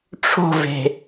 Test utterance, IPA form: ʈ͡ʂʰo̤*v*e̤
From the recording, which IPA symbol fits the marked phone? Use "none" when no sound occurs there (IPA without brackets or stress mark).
v